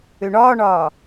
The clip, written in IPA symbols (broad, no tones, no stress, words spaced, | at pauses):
øɳɒːɳɒː